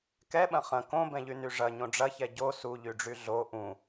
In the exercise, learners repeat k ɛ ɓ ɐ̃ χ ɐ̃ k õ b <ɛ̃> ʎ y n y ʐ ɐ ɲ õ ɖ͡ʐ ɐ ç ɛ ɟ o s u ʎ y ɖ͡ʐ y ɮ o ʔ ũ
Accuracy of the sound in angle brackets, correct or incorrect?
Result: correct